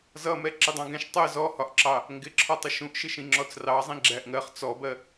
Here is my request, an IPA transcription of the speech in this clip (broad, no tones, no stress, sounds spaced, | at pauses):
z ʌ m ɛ ǁ ɪ dˤ ɑ̃ ɡ ɛ̃ ʃ tˤ ɜ z ɔ h ɒ ʔ ǁ ɑ | ŋ ɡ ɪ ǁʰ ɒ tˤ ɪ ʃ ũ ʔ ʃ ɪ ʃ ĩ ŋ͡ǁ ɔ t͡s r ɑ zˤ ĩ ɡ͡ǁ æ ʔ ŋ ɜ χ t͡s ɔ b ɜ